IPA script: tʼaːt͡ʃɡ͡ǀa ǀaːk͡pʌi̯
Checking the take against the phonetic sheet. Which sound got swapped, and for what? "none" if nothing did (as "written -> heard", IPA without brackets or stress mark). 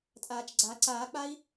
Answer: ʌ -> a